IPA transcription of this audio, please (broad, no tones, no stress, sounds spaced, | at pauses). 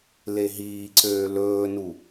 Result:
l e ɦ iː ǀ øː l ɵː n u